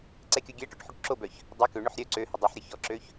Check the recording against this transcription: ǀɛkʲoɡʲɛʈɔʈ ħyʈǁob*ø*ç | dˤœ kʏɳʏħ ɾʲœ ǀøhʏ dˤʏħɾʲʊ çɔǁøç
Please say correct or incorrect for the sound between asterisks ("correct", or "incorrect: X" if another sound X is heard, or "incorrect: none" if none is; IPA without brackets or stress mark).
incorrect: œ